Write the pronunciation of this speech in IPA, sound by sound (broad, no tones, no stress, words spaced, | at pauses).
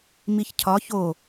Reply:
miçcʰɒ ço